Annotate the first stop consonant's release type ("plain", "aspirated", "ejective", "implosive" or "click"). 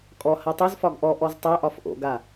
ejective